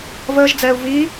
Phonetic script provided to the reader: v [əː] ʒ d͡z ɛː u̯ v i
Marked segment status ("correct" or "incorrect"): correct